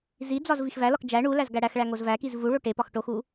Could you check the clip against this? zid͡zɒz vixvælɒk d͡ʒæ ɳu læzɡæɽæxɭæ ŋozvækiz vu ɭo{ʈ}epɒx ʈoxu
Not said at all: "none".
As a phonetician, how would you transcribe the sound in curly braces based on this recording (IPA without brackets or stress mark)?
ʈ